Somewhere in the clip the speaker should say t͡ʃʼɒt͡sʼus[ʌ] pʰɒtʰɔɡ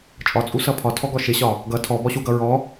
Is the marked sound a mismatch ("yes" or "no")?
no